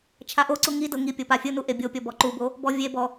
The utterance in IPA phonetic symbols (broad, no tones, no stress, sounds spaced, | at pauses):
t͡ʃʰ a ʔ o ǀ u ŋ i d ɤ ŋ i pʲ ɤ p a fʲ ɯ n u ʔ e bʲ o pʲ ɔ b ɔ ǃ u b o | b ɔ vʲ e b ɔ